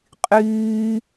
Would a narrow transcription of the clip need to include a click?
no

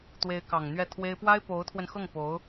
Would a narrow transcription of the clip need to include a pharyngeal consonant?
no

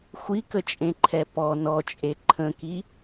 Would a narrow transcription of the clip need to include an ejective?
yes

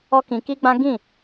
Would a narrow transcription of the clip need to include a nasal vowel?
yes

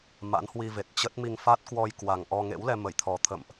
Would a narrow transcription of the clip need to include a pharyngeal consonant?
no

